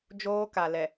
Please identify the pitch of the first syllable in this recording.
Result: high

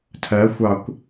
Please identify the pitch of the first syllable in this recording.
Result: rising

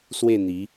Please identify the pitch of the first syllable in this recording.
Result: falling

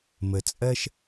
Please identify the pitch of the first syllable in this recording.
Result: low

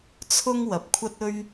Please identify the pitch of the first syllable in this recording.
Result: high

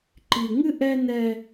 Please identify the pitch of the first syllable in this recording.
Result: low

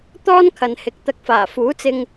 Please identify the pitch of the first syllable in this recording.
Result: high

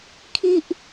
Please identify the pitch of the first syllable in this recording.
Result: high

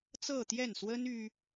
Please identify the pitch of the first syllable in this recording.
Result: falling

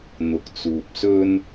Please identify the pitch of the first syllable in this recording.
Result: low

